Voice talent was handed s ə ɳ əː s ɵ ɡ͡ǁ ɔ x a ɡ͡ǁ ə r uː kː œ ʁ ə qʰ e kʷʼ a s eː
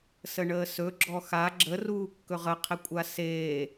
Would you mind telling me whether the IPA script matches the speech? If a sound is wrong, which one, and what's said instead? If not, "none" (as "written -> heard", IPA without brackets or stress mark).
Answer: œ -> ɵ